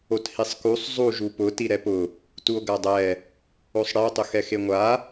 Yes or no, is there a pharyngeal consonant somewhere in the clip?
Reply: no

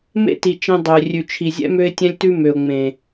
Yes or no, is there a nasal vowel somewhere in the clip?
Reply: yes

